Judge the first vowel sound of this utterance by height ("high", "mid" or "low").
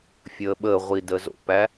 mid